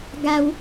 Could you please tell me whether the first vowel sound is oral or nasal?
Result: oral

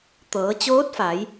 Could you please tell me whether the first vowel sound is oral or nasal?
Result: oral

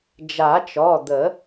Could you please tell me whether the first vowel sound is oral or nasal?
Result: oral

